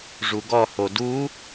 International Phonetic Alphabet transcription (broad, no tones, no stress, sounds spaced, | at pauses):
ʐ u ɡ ɔ h o d u